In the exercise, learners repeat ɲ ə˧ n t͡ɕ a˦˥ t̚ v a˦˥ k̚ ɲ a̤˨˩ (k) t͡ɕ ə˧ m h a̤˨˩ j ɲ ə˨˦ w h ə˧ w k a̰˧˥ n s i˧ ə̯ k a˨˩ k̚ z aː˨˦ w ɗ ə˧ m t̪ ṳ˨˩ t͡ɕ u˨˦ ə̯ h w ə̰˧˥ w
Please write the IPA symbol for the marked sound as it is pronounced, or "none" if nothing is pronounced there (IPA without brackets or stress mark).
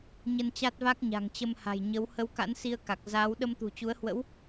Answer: ŋ